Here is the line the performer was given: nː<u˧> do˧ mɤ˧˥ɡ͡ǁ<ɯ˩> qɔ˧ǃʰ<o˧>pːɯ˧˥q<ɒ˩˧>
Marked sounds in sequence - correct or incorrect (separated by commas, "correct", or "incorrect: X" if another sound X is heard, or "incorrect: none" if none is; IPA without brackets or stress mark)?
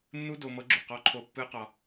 incorrect: u˥, incorrect: u˩, correct, incorrect: ɒ˧